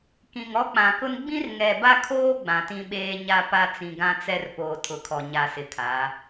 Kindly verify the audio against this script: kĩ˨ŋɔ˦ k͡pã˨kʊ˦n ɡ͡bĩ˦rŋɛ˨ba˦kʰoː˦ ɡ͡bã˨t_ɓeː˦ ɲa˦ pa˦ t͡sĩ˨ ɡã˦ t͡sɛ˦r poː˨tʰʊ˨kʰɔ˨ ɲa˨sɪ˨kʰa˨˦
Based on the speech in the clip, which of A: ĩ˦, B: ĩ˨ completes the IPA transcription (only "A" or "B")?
A